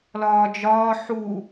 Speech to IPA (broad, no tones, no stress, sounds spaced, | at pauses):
l ɒː d͡ʒ ɒː ħ u